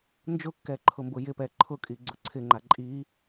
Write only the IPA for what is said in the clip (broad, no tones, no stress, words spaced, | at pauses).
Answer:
nd͡ʒʊkːɛǃʰʊmbʊ jɪpɛ ǃʰʊkʼiɡ͡ǀʊ ǀʰɪŋ͡ǃa ǃʼi